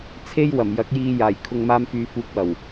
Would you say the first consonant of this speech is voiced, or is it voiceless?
voiceless